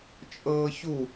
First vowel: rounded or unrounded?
unrounded